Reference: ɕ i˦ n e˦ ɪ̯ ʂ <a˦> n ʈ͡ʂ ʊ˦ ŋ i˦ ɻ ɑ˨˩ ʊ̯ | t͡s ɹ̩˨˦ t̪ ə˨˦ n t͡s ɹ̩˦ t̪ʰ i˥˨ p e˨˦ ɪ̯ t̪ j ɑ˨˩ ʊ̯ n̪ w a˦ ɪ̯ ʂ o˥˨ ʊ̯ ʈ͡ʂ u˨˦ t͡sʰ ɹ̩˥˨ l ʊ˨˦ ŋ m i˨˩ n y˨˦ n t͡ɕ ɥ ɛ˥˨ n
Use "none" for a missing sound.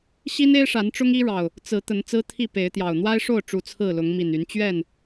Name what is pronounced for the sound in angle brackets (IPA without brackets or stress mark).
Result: a˨˦